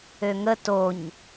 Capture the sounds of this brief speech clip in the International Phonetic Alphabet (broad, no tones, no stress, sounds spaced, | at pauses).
ø ŋ ə t o ɲ